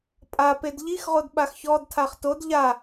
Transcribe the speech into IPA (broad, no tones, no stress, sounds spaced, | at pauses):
pʼ a p e d ʎ i x ʁ o d ɓ a x ç ɔ d tʰ a χ t o d ʎ a